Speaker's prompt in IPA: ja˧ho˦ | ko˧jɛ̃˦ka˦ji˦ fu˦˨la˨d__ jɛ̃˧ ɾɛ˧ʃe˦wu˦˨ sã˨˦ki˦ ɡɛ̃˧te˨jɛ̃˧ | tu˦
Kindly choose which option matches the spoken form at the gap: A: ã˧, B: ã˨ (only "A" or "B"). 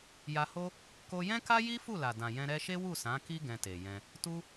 B